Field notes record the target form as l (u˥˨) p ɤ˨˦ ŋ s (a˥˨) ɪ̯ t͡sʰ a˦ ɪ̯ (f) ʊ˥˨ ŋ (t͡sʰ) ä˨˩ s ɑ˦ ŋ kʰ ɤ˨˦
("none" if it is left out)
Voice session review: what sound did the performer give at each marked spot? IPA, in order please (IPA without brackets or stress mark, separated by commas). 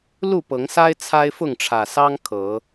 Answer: u˥˨, a˦, f, ʈ͡ʂʰ